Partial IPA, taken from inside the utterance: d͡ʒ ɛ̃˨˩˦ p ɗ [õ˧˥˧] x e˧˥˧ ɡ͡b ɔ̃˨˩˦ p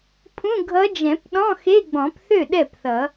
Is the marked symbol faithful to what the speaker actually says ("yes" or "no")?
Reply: no